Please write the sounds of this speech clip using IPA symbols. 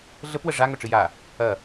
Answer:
ɮ ə p w ə ʐ a ŋ œ ʈ͡ʂ ɨ j a | ɐ

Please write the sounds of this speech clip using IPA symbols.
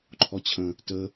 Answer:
ǃʰ ɔ t͡ɕʰ ə̃ | t ə

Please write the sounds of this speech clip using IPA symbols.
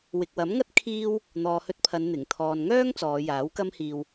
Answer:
w ɪ˨ k̚ w ɐ˨˥ m ŋ ɐ˥ t̚ kʰ iː˥ w | n̪ ɔː˨ h ɵ˧ t̚ pʰ ɐ˨˧ n n̪ ɪ˨˩ ŋ t̪ʰ ɔː˨ n ŋ œː˥ ŋ t͡s ɔː˨˧ j aː˨˥ w k ɐ˥ m h iː˧ w

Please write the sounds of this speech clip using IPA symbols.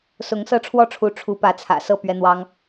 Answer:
s ʊ˧˥ ŋ s ɤ˥˧ ʈ͡ʂʰ w ɔ˥˩ ʈ͡ʂʰ u˧˥ ʈ͡ʂʰ u˧˥ p ä˧˥ t͡sʰ ä̰˨˩ s ɤ˥˩ p ɥ ɛ˥ n̪ w ɑ˥ ŋ

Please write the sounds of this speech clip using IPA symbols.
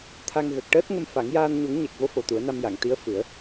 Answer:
t̪ʰ a˧ ŋ ɣ ə˨˩ k̚ ʈ əː˦˥ t̚ ŋ ə˧ m f a˨˩˦ ŋ j aː˧ n ɲ u˨˩˦ ŋ ɲ ɛ˨˩ k̚ v o˧˥ f o˨˩ t̪ u˨˩˦ ə̯ n a˧ m j a˨˩˨ ŋ t̪ i˧˥ ə̯ f ɨ˨˩˦ ə̯

